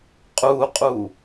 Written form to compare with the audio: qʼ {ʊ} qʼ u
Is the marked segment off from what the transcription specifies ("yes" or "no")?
yes